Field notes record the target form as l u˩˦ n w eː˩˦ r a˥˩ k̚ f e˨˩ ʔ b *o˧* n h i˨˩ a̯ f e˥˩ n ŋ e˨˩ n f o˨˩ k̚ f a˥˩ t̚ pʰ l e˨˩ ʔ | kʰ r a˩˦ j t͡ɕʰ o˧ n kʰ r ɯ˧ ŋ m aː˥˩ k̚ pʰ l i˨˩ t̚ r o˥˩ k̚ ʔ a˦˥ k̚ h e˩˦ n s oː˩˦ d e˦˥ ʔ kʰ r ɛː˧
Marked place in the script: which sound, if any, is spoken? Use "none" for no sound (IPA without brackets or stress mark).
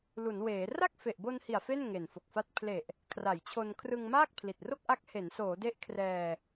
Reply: o˧